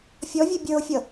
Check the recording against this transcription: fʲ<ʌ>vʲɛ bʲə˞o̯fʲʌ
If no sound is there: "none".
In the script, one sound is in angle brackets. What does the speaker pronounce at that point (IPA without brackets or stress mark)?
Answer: ɔ